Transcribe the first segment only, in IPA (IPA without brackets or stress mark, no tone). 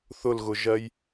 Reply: θ